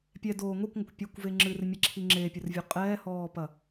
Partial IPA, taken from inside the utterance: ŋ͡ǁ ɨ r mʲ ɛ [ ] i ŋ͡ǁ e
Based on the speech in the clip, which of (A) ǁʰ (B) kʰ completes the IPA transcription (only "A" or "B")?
A